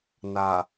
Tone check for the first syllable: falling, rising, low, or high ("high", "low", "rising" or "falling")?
low